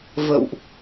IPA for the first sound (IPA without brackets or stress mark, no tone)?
v